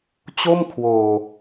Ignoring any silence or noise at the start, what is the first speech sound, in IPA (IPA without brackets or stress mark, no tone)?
t͡ɕ